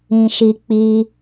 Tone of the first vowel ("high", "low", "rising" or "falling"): low